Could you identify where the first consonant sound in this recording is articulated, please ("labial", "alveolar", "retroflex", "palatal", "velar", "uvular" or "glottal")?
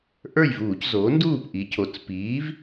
glottal